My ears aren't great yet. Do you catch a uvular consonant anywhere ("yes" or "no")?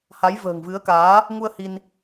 no